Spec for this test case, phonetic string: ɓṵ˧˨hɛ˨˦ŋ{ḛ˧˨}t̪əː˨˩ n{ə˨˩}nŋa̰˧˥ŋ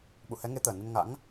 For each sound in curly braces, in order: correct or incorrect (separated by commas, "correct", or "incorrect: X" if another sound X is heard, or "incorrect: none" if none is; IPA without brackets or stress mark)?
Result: incorrect: e˨˦, incorrect: ə˧